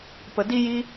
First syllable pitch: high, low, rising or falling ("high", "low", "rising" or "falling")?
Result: low